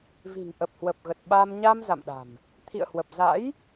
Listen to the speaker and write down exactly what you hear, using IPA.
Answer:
vi̤˨˩ŋ ʔə˨˩p̚hwə˨˩p̚ɣə˨˩t̚ ɓa˧m ɲa˧m za̰˧˨mɗa̤˨˩m | t̪ʰḭ˧˨ə̯hwə˨˩p̚ za̰˧˥j

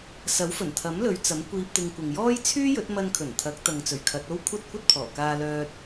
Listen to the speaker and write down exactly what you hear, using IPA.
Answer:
sɐ˨˥wfɵ˨˩nt̪ʰɐ˨˥mlɵ˨˧ɥ t͡sɐ˨˥m kʷiː˧p̚t̪ɪ˧ŋkʷɪ˨ŋ jɔː˥j t͡sʰyː˥jɵ˨˥t̚ mɐ˧nkʰɵ˨˩nt̪ʰɐ˨˥k̚t̪ɐ˨ŋ t͡sɵ˨˩ɥkʰɐ˨˥t̚o˥w kʷʰɐ˥t̚kʷɐ˥t̚pʰɔː˨˩kaː˧ lœː˧t̚

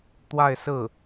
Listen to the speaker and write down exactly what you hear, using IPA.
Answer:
t̪wa˥˧ɪ̯sɹ̩˥˩

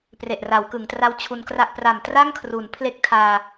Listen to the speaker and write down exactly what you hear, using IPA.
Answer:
pre˨˩ʔra˩˦wkɯ˩˦ŋtra˦˥w t͡ɕʰu˧nkra˥˩ʔ pra˨˩m tra˥˩ŋkʰru˩˦npʰle˦˥k̚ tʰaː˧

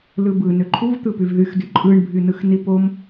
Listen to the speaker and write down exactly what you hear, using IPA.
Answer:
lɯbɯ nøǃʰuvt̪ɯpyv ðyxdy ǃʼɯɳbʱy nɯxnipom

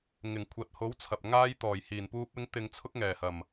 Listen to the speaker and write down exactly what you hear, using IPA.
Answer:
ŋɪ˨˩ŋ kʷʰɐ˨t̚ho˨˥wt͡sʰɐ˨p̚ ŋaː˧j t̪ɔː˨˩jhiː˨˩npuː˧p̚ɪ˧ŋ t̪ɪ˨ŋt͡sʰʊ˧k̚ŋɛː˨˩ hɐ˨˩m

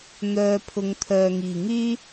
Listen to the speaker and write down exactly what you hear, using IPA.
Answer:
n̪œː˧pʰʊ˨˧ŋ t̪ʰœː˨ŋiː˨˩ŋyː˥

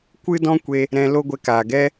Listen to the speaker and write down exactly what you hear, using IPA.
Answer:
kʷɨ˦dɔ̃˦kʷe˧ | ɾɛ̃˧ lo˦ɡʷɛ˧ka˨ɡɛ˦

